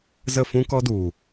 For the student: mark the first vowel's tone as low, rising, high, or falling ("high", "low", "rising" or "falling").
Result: falling